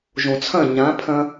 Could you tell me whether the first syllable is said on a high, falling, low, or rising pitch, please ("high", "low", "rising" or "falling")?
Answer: low